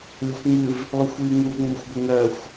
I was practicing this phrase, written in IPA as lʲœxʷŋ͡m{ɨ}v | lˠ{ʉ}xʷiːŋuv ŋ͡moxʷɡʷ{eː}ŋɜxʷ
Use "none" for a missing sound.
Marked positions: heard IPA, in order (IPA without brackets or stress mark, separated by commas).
ɨ, ʉ, e